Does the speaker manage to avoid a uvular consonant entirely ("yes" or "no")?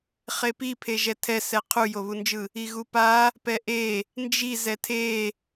no